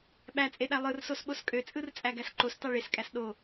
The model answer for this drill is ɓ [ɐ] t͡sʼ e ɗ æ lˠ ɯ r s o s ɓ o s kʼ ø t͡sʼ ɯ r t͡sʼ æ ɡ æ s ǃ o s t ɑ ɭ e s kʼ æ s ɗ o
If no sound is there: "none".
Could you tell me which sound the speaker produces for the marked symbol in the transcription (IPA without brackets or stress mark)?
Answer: æ